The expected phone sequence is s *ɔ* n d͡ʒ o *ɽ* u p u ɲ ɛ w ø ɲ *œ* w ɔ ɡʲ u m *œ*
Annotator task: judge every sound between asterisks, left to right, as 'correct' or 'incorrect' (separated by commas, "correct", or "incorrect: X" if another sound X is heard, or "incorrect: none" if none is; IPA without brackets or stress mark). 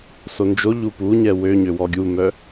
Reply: incorrect: o, incorrect: ʎ, incorrect: ø, correct